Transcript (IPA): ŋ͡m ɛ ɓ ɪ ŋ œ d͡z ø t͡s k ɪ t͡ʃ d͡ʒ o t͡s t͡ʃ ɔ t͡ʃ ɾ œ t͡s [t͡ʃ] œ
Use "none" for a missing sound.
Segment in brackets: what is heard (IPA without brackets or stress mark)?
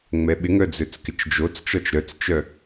t͡ʃ